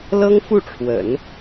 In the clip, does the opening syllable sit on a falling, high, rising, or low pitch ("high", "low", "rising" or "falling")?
high